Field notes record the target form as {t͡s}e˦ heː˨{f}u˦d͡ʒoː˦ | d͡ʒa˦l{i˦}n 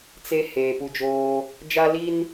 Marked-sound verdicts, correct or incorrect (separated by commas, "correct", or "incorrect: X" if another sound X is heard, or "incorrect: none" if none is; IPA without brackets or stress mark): correct, incorrect: p, correct